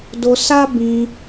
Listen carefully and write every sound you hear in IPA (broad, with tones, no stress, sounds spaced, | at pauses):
d o˧ s a˦ b ĩ˧